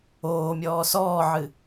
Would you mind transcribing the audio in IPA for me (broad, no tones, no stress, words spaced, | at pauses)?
oːmʲɔː sɔːʕɨ